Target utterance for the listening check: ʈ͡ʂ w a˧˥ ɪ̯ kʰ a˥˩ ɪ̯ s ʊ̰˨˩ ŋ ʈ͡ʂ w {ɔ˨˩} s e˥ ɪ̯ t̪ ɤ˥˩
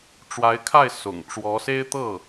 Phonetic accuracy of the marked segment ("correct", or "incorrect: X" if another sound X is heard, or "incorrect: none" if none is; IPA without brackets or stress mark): incorrect: ɔ˧˥